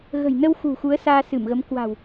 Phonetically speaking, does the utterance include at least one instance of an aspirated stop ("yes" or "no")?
no